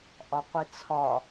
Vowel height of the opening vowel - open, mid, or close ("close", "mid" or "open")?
open